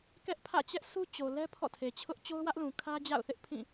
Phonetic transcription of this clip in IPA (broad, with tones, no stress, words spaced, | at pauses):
kɛ˦ʔpʰä̰˦˨t͡ɕɛ˦ʔ sʰu˦ t͡ɕo˨lɛ˦ pʰɔ̰˦˨tʰe˨t͡ɕʰʊ˦ʔ t͡ɕo˦ʊ̯wä˦ʔlũ˨ kʰä˦ d͡ʑa̰˦˨ʊ̯θɪ˦ʔpʰĩ˦˨